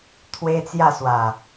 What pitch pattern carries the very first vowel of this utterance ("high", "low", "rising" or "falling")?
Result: high